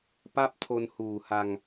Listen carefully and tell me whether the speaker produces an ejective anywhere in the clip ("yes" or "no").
no